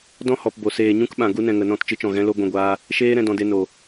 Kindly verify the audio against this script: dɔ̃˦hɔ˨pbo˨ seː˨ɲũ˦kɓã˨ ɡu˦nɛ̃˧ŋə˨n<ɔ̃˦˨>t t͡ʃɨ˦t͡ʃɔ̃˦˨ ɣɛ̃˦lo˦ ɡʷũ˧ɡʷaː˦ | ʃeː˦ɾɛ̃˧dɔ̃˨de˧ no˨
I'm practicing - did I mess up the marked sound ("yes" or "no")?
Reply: no